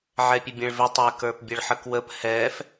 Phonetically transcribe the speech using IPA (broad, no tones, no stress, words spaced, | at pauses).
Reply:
ʕɛpʲəbʲɛ̃ɭvɪ tˤɪ kə˞pbʲəɭħəkwəp hɛf